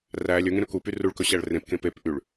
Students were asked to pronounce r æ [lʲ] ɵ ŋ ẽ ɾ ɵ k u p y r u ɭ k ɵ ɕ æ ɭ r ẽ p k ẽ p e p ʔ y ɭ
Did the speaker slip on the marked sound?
no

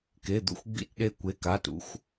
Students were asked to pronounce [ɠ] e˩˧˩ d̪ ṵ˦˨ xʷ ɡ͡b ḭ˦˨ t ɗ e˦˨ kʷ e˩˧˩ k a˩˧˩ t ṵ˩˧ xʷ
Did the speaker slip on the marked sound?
yes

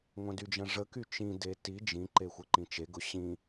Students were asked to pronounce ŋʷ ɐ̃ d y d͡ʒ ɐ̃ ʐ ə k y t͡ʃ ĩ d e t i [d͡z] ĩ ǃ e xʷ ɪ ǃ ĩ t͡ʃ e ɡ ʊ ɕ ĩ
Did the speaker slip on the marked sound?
yes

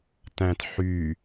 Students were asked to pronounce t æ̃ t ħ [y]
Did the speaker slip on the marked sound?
no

